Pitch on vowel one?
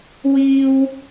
high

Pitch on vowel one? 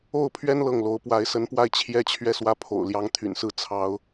falling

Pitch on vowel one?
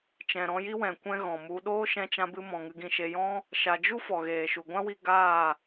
low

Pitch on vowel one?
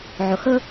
low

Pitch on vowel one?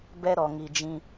high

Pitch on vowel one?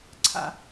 low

